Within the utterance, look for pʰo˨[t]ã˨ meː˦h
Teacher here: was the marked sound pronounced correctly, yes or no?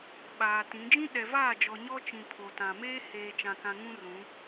yes